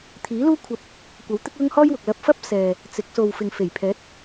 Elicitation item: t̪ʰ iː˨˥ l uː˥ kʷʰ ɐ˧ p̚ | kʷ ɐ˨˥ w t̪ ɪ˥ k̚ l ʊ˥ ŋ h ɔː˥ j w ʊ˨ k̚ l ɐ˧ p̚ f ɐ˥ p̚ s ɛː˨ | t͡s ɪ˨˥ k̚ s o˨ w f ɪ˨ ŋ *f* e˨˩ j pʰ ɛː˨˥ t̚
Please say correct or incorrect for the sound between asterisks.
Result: correct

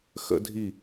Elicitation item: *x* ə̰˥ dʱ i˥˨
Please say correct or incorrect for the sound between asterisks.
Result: correct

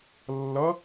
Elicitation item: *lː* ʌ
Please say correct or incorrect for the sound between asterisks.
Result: correct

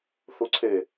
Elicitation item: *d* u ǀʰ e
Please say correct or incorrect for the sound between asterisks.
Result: incorrect: θ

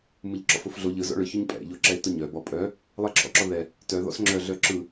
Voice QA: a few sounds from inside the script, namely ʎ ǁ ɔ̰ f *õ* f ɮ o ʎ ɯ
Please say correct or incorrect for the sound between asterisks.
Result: incorrect: o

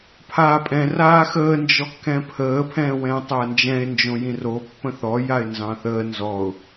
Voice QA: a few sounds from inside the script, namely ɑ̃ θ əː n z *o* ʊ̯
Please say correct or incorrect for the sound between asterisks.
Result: incorrect: ɔ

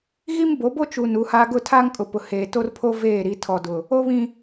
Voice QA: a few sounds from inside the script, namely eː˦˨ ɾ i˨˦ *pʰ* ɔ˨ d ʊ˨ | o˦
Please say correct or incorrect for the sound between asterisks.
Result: incorrect: tʰ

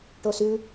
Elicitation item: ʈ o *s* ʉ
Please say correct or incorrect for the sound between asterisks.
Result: correct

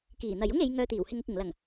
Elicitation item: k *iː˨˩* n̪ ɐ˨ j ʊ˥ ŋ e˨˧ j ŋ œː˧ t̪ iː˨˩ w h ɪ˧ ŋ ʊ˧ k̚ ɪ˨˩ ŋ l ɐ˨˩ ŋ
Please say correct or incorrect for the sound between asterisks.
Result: correct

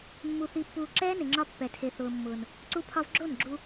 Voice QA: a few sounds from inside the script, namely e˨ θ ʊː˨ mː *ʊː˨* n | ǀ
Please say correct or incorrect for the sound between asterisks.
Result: correct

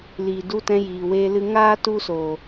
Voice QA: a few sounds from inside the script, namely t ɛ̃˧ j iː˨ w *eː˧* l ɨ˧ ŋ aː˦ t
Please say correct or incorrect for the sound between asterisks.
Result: correct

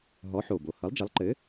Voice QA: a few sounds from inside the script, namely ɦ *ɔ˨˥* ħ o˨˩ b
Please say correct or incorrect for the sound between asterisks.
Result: correct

